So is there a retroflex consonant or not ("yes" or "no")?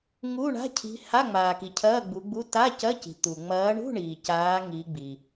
yes